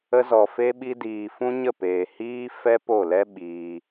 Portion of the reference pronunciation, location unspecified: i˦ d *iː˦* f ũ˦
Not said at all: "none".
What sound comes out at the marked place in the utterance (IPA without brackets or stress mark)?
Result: iː˧